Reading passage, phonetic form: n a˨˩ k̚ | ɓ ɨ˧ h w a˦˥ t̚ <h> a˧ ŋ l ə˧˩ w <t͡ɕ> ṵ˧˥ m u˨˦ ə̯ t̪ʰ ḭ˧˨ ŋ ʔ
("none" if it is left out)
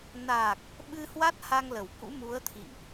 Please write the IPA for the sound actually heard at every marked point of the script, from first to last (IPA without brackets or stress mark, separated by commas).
h, k